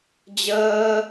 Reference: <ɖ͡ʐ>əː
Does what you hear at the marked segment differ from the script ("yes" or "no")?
yes